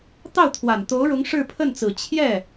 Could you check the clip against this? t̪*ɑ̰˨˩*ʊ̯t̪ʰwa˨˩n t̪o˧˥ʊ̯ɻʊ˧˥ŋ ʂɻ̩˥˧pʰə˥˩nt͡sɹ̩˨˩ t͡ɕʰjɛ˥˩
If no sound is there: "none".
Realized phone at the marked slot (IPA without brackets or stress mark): ɑ˥˩